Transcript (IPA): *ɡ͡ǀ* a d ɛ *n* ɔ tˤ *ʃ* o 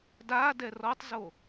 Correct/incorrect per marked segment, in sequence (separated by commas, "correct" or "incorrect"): incorrect, incorrect, incorrect